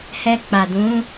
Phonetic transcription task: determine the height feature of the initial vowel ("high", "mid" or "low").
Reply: mid